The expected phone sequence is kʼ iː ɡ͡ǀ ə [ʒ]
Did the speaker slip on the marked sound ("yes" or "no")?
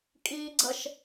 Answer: yes